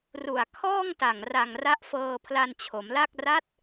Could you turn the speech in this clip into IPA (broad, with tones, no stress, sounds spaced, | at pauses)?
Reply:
r u˨˩ a̯ kʰ ɔː˥˩ ŋ t a˨˩ ŋ r a˨˩ ŋ r a˦˥ ʔ f ɤː˧ pʰ l a˧ n t͡ɕʰ o˩˦ m l a˥˩ k̚ r a˦˥ t̚